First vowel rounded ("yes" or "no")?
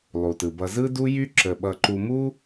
yes